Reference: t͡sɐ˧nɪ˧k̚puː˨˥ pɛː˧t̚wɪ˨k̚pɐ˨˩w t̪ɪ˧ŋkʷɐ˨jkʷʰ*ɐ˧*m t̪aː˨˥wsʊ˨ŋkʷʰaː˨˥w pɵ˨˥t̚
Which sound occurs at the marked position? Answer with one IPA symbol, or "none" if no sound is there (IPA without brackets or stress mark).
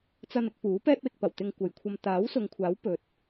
ɐ˧